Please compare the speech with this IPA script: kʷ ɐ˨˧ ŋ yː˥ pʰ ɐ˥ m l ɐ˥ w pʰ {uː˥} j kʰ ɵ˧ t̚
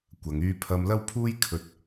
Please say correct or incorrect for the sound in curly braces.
correct